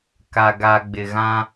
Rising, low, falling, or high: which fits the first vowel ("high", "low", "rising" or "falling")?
low